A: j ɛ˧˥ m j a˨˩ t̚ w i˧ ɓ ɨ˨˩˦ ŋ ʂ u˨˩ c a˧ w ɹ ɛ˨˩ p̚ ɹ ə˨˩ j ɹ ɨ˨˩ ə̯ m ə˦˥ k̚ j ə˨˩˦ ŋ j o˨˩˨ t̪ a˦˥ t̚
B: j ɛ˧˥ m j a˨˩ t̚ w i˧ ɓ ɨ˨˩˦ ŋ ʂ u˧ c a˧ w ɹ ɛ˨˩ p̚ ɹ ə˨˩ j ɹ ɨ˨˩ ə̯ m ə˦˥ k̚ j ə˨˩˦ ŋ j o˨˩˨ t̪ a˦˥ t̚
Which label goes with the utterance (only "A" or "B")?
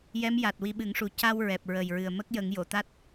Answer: A